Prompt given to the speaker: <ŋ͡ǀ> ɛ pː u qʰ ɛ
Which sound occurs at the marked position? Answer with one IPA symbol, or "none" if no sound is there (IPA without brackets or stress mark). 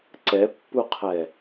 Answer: ǀ